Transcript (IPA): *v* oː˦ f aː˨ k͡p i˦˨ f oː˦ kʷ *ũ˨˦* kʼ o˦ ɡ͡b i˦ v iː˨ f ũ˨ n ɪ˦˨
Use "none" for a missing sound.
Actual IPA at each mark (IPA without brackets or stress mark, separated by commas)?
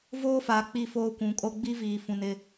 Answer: v, ũ˨˦